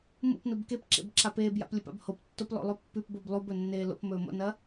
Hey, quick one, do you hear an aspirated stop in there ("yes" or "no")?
no